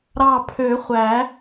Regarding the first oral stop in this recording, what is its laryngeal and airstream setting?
aspirated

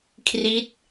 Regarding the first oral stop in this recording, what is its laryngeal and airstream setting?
aspirated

